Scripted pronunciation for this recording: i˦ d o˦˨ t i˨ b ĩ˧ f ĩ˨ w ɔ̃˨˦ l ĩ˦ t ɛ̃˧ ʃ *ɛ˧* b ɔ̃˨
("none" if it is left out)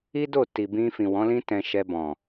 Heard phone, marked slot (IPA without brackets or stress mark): ɛ˧